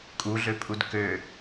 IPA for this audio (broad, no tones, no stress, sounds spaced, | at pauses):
kʼ u ɮ ø pʼ u d k ø